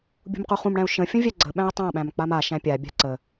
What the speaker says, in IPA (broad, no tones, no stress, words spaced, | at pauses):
bʲṳmquχũmɽæ̃u̯ ʃə̃ fʲə̃vʲæɡ͡ǀəɓæ̃i̯ tˤãɓæ̃m k͡pamaʃæ̃ pʲabʲa̤ ǀə